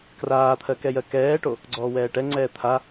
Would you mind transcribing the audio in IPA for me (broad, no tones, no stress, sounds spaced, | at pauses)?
k r aː t̪ʰ ɜ k ɛ j ɜ k ɛː ʈ o | ɡ͡ǀ ɔː w ɛː ʈ ɛ ŋ͡ǀ ɛː t̪ʰ a